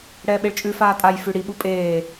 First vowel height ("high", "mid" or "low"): mid